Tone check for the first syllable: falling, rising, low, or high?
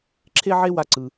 high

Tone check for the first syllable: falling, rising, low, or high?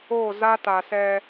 falling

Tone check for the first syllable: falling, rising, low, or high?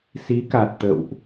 rising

